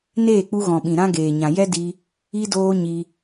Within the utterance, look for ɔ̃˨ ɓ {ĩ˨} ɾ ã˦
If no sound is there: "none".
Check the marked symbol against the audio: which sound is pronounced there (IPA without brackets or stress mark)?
ĩ˨